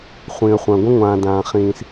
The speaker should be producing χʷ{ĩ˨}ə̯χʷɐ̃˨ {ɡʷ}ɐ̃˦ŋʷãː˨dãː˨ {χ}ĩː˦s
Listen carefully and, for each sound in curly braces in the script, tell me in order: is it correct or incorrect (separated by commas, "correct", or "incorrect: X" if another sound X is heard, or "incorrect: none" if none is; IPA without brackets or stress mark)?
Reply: correct, correct, correct